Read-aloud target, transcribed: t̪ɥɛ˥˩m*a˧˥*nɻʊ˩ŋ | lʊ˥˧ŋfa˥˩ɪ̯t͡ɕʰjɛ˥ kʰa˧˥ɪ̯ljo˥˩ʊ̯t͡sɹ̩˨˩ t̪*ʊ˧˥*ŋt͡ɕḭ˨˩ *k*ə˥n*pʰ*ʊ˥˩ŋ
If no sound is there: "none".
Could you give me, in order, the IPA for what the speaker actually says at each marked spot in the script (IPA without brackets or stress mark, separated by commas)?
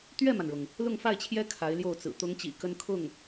a˩, ʊ˧˥, k, kʰ